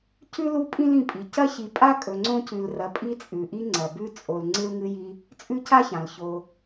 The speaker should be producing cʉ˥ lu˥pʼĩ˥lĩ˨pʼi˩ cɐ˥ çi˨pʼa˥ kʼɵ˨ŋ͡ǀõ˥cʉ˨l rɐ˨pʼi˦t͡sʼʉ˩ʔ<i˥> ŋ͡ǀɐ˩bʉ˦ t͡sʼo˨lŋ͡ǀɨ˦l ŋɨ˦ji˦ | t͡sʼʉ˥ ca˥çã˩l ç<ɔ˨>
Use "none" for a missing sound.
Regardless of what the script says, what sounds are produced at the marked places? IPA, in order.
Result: i˦, o˨

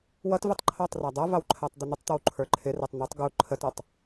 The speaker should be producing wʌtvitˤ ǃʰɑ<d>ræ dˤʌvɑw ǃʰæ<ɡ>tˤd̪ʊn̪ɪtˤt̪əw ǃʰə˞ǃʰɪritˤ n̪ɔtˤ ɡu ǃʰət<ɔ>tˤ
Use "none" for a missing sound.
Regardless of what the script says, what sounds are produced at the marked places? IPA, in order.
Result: tˤ, none, ʌ

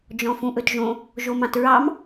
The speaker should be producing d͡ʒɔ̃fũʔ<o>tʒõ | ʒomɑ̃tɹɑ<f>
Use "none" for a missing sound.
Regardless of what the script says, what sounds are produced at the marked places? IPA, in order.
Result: ɵ, m

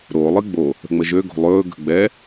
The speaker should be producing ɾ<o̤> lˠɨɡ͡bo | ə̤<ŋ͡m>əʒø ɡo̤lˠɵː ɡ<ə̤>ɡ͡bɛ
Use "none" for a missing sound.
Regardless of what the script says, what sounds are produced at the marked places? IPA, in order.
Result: o, ŋ͡m, ə̤

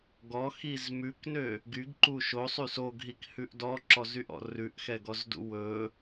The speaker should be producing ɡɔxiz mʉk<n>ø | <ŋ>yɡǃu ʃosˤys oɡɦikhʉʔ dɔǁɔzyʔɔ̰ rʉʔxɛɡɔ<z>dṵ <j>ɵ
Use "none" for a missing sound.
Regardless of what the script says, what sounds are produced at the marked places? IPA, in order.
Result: n, ɡ, z, w

